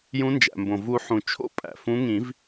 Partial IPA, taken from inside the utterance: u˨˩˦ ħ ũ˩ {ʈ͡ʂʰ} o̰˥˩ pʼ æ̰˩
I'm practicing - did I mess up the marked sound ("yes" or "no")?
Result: yes